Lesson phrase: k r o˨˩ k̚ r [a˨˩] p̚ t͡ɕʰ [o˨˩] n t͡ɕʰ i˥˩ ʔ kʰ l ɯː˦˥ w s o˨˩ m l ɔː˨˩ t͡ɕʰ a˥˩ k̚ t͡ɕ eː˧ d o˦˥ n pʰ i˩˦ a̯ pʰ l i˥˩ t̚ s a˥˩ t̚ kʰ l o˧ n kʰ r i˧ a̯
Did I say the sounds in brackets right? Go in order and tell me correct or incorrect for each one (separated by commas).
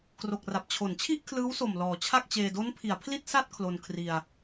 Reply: correct, incorrect